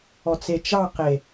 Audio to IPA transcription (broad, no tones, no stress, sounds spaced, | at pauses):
ɔ t͡s e t͡ʃ ɑ q e